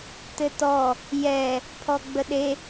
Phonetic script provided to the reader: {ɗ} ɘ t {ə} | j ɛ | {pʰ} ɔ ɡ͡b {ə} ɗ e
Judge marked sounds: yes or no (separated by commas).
no, no, yes, yes